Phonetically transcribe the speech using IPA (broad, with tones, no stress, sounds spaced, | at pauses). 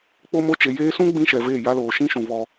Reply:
k͡p o˦ m o˦ t͡ʃ e˨ j eː˦ s ũ˦ ɡ͡b ĩ˦ ʃ ɛ˨ v eː˦˨ j a˦ l oː˨ ʃ ĩ˦ ʃ ũ˨ v ɔ˦